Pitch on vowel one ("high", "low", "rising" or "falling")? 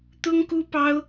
high